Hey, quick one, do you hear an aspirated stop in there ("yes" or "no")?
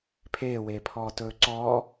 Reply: yes